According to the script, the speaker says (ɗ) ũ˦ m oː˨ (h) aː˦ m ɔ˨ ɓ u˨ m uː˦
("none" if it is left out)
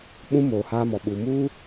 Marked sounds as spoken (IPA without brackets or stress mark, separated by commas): ɓ, h